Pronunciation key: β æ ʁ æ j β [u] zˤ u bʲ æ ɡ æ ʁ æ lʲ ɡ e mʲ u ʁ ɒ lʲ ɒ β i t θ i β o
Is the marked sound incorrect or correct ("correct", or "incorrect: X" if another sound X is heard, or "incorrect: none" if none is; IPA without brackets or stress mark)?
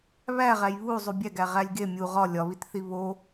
correct